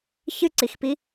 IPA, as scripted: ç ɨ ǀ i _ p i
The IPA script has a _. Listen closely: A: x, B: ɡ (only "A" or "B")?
A